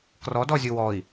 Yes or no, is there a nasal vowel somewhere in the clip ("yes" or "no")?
no